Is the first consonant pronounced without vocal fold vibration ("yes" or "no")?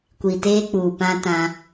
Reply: yes